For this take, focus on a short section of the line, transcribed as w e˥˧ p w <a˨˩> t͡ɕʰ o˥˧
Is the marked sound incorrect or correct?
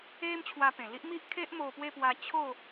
incorrect